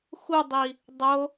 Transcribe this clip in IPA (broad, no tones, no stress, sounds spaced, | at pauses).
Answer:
x u dˤ i | dˤ o